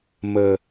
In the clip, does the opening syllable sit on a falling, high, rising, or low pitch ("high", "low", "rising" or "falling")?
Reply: low